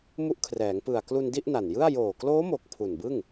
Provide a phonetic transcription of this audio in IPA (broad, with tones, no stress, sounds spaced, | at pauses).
m u˦˥ ʔ kʰ r ɛː˩˦ ŋ p ɯ˨˩ a̯ k l u˧ n d i˥˩ ʔ n a˨˩ n j ɯ˥˩ a̯ j oː˨˩ k l oː˦˥ m o˨˩ k̚ pʰ u˨˩ n b ɯ˥˩ ŋ